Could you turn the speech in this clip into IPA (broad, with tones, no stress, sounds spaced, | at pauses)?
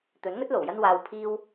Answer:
t̪ ɵ˨˥ n ŋ ɵ˥ t̚ l o˨˩ w j ɐ˥ n w aː˧ w pʰ iː˥ w